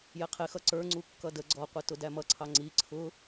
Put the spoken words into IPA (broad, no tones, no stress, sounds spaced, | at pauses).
j ɛ qʰ ɪ x ʌ ǀ ə˞ ŋ͡ǀ u kː ʌ d ə ɡ͡ǀ ɔ qʷ ɪ t ʊ d æ m ʌ ǀʰ ɑ ŋ͡ǀ i ǀʰ ʊ